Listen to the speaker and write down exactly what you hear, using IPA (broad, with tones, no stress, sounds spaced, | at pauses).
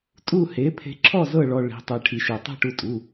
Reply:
tʼ u˥˨ h e˩˥ pʰ e̤˧ ǁʰ ɔ˥˨ z ɤ˥˨ ɭ ɔ˧ ɭ i̤˩˧˩ tˤ e˧ ʈʰ i˧ ʃ e˧ tˤ e̤˥˨ ʈ u˧ tʼ u˩˧˩